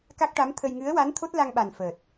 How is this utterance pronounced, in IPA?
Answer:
k a˦˥ k̚ ʈ a˧˥ m t̪ʰ ə˧ j ŋ ɨ˧˥ ə̯ w a˧˥ n t̪ʰ o˦˥ t̚ l a˧ ŋ ɓ a˨˩ n f əː˨˩ t̚

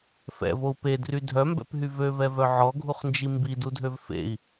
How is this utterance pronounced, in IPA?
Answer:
f ɛ̰ v o u̯ p e d r y dʱ œ m b ɛ̰ p ɦ y v ø v ɛ v œ ʕ ɔ ɡʱ u χ n d͡ʒ i m b i d u dʱ ø v f ḛ i̯

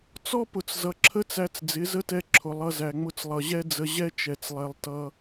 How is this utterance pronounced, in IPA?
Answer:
t͡s ɔ˦ p ʊ˨ t͡s z ʌ˨ ǁʰ ə˦ t͡s æ˧ t͡s d͡z ɪ˨˦ z ə˦ t ɛ˧ ǁʰ ʊ˨ lˠ ʌ˧ z æ˨ ŋ͡m ʊ˧ t͡s lˠ ʌ˨ ʑ ɛ˦ d͡z ə˧ ʑ ɛ˦ t͡ʃ ɛ˨ t͡s lˠ ɛ˧ lˠ t ʌ˧

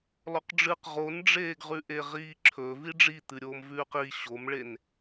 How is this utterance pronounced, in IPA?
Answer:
lˠ o q ɖ͡ʐ ɨ q ʁ o n ɖ͡ʐ eː ɡ ʁ ʉ ʔ e ʁ iː ǁʰ ɵ v i ɖ͡ʐ i t̪ ɨ ɾʲ oː m v ʉː q i ɕ o m ɭ e n

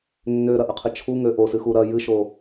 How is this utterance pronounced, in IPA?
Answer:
nː ø ɾ ɐ ʔ ə qʰ ə t͡ʃʰ u ŋ ø ʔ o s ɨ x u ɾ ɐ j ɨ ʃ o

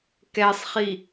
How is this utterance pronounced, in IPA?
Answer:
k ɛ sˤ χ i

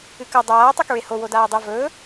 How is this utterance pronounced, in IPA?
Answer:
ɨ k ɐ dˤ aː tˤ u k ɹ e h o w o d aː dˤ e v ɵː

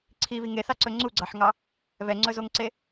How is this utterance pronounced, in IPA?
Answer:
ǀʰ i β i ŋ e θ ɑ ǀ ɵ ŋ͡ǀ u ɡ͡ǀ ɑ ħ ŋ ɑ | β ɛ ŋ͡ǀ ɵ z o ŋ ǀ e

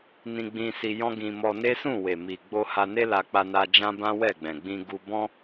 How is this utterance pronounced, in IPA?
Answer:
n ĩ˧ ɡ͡b ĩ˧ s i˧ j ɔ̃˦ ɡ ĩ˧ m ɔ˧ n e˦ s ũ˦˨ w e˨ m i˨ ɡ͡b o˧ h a˧ n e˦ l a˧ k͡p a˧ n a˧ d͡ʒ ã˦ b ã˦ w ɛ˦˨ ɡ͡b ɛ̃˨ ɡ͡b ĩ˧ ɡ u˧ b ɔ̃˦

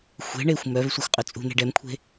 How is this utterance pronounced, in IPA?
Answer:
xʷ e̤ ɳ e xʷ m œ v sʷ e xʷ qʼ œ t͡sʼ ṳ n̪ e̤ ɖ ɛ m kʷʰ e̤

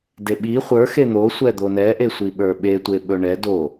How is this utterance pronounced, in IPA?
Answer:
d e ɓ i χʷ ə˞ x e n̪ o sʷ ɛ d̪ o n ɛ ʔ e sʷ i ɓ ə˞ ɓ e tʷ e ɓ ɵ ɳ ɛ d o

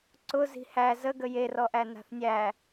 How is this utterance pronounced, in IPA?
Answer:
ǀ ʊ z i̤ h æ z ə ɡ ə j e r ɔ ʔ æ n a̤ θ nʲ æ

